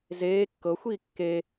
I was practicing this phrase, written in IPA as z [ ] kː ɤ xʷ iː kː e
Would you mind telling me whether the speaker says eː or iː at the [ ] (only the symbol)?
eː